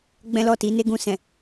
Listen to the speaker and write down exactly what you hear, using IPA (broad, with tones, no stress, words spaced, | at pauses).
ɡ͡bɛ̃˦lɔ˦˨ ti˨˦ne˦ɡũ˧sɛ̃˨